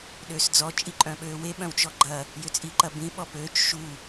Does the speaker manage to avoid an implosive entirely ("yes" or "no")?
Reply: no